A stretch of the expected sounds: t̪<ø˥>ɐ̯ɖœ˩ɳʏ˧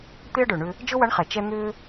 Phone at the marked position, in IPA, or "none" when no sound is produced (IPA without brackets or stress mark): e˥